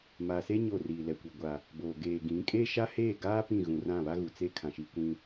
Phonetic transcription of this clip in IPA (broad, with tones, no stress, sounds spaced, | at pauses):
m a˨ s e˦ ɲ o˦˨ r iː˨ l ɛ˨ kʷ i˨ ɡʷ a˨ | b oː˨ ɡ eː˨ ɡ ĩ˨˦ kʼ e˦ ʃ a˦ h eː˦˨ ɡ aː˦ p ĩ˦˨ ɣ ũ˨ r ã˦˨ β a˦ ɣ u˨ t͡s e˦ kʰ ã˨ ʃ i˨ kʷ ĩ˨